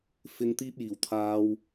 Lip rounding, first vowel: unrounded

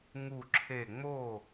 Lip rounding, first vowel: rounded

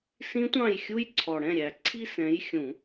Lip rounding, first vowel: unrounded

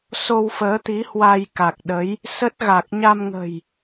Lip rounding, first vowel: rounded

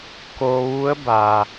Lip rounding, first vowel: rounded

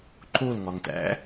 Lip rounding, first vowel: rounded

